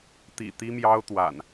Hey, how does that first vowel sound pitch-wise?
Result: low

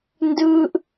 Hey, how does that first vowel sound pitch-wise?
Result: high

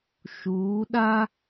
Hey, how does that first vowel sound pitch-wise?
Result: rising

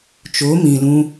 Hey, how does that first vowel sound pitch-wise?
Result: rising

